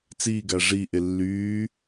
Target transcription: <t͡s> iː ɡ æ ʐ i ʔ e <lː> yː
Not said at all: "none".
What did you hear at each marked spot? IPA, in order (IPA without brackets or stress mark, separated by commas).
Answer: t͡s, lː